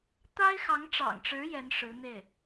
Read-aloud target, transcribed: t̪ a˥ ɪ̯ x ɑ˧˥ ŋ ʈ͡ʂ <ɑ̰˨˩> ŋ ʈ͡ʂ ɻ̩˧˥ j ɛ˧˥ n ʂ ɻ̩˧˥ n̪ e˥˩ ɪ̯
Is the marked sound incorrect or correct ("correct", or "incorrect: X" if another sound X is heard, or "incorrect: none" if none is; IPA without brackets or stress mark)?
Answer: correct